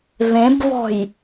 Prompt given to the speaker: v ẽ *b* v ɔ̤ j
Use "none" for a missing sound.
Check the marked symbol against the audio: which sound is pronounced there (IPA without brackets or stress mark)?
b